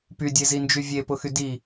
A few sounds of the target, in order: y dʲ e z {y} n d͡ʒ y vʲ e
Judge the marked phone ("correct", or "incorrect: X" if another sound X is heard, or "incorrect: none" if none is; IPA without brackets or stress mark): incorrect: i